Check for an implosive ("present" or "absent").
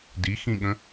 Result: present